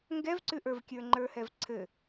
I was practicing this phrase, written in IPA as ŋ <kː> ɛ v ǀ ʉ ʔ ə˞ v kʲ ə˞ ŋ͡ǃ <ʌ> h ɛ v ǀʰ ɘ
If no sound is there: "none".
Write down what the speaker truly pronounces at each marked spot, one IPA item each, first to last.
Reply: ɡ, ə˞

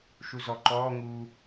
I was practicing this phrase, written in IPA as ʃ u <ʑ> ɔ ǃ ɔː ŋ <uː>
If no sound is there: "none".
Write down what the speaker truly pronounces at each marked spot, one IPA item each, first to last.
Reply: z, uː

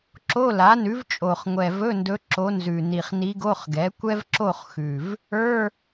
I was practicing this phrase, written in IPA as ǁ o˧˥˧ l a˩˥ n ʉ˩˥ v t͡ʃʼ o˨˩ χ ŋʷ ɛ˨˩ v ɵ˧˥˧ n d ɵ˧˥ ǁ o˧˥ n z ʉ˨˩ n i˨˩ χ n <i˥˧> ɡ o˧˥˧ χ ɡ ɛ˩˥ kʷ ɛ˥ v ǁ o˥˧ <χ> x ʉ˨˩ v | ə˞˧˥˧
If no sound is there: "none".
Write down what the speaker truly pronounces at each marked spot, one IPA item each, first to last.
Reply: i˧˥, χ

